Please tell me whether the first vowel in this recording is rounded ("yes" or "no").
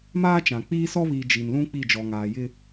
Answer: no